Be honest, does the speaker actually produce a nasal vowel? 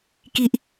no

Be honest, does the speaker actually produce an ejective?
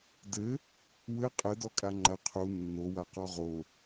yes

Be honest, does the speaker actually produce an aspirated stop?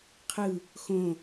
yes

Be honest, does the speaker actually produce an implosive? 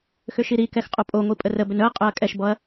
no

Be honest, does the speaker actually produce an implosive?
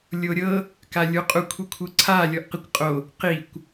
no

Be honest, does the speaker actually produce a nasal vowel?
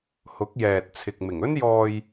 no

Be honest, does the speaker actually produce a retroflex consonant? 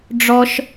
yes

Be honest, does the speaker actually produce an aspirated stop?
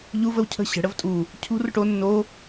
yes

